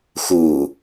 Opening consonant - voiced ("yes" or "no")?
no